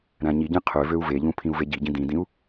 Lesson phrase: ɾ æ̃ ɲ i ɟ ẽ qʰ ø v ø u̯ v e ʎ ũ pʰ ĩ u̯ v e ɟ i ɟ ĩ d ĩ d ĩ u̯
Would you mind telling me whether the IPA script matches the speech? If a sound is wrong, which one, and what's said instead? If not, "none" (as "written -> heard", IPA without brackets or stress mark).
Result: none